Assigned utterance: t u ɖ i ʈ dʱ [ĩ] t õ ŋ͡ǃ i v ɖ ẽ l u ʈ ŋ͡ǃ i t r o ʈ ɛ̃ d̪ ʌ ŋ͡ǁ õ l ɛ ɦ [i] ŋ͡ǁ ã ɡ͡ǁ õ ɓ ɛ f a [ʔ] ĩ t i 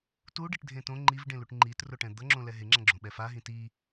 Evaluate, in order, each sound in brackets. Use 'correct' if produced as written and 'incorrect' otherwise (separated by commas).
incorrect, incorrect, incorrect